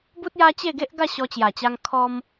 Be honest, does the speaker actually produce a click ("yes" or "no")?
no